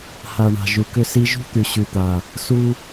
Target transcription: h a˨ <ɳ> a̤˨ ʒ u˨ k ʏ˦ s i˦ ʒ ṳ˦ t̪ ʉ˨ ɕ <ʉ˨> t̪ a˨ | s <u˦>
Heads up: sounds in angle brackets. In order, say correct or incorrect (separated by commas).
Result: correct, correct, correct